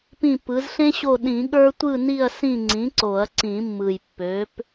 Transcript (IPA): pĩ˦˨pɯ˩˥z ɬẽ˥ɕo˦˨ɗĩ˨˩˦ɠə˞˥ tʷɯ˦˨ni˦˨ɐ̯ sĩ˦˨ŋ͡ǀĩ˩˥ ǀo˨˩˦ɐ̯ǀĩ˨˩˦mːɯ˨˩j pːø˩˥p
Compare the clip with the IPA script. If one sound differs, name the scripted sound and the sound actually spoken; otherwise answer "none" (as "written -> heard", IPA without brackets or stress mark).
none